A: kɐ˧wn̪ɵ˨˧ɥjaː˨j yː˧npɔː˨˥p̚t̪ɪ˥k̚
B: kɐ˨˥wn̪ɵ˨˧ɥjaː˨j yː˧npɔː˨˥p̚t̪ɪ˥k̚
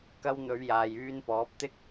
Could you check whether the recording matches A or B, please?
A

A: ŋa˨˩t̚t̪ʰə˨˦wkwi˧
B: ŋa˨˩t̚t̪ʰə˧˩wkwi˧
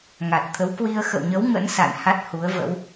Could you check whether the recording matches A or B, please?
A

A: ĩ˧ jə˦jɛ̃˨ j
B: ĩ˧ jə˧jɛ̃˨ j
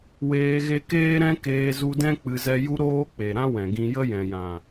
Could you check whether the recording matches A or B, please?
A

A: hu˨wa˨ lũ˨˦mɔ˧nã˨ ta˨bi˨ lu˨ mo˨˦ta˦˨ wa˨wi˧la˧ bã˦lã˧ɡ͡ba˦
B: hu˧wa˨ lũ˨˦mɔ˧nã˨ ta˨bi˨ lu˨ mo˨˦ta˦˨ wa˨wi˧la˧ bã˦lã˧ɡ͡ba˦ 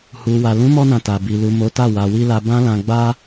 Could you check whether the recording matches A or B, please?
A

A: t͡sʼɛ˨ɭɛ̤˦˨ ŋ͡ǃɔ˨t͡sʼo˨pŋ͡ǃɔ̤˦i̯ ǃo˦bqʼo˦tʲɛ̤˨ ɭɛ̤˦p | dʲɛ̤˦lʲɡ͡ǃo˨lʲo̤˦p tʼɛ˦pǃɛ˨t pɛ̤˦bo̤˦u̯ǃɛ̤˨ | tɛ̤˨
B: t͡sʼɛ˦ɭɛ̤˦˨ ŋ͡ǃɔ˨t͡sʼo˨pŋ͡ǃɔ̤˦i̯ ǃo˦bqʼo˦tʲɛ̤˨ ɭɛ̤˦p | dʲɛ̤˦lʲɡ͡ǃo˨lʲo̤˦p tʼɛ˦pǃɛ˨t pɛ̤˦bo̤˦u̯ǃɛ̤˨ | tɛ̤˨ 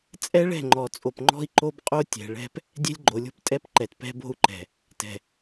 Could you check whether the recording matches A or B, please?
B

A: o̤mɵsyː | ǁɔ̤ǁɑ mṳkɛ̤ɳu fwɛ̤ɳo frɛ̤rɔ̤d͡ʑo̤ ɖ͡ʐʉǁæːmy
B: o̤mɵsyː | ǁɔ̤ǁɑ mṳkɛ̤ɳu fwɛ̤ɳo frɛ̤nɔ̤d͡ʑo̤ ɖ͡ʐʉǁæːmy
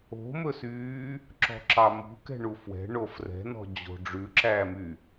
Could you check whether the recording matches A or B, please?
B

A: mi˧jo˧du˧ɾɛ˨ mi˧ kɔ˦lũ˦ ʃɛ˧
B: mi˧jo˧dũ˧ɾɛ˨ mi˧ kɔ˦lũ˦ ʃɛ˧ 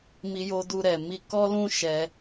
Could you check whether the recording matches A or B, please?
A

